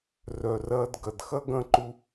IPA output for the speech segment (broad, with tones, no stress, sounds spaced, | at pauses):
r œ˩ r ɐː˧ d ɡ ɐ˩ d x ɐ˥ ɡ ɐ̃˥ ǃ u˥